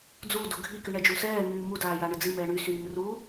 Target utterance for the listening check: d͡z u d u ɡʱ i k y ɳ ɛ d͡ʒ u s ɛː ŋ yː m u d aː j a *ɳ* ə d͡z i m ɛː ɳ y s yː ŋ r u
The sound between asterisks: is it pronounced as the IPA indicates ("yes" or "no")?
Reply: yes